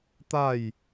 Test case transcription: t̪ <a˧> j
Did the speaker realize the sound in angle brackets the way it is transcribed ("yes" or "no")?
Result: no